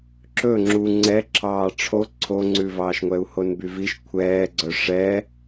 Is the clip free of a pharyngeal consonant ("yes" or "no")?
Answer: yes